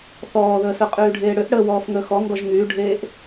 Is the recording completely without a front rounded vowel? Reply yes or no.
no